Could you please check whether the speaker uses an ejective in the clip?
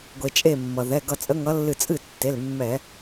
yes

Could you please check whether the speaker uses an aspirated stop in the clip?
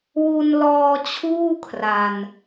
yes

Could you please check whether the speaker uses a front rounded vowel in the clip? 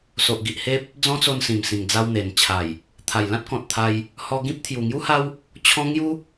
no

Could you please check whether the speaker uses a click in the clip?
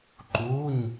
yes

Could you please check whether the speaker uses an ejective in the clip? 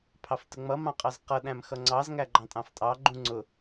yes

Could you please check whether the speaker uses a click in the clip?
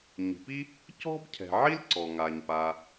yes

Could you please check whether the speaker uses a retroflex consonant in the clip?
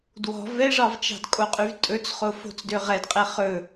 yes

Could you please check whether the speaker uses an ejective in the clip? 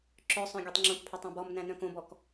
no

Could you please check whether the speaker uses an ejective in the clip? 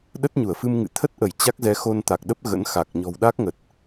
no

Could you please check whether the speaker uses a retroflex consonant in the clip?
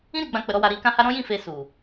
no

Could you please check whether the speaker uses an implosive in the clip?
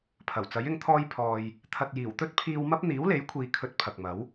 no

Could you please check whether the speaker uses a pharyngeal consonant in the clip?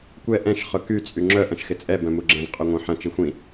yes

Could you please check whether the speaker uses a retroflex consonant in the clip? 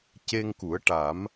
yes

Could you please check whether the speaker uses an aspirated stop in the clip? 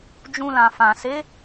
no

